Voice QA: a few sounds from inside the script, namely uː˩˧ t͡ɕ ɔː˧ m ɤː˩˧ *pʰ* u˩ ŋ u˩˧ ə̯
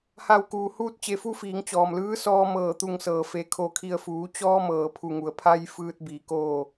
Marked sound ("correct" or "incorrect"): correct